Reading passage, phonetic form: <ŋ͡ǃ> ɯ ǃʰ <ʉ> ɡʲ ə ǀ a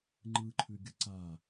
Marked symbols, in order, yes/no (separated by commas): yes, yes